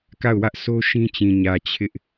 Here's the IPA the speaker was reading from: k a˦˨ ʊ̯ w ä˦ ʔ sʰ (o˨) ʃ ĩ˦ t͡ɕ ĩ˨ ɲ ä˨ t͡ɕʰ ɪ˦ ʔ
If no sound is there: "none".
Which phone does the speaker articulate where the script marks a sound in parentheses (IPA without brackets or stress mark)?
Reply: o˦